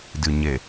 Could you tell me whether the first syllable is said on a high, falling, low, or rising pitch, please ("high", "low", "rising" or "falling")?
low